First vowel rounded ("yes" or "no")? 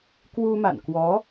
yes